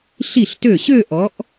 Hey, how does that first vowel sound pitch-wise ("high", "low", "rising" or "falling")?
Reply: falling